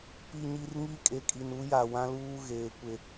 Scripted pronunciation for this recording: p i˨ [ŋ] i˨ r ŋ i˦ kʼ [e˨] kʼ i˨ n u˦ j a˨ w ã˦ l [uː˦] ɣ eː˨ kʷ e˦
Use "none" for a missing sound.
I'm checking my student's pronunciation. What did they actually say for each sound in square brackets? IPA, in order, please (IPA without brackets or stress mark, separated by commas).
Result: ɲ, e˨, uː˦